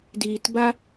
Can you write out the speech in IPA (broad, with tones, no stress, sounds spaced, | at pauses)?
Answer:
d iː˨ t b a˦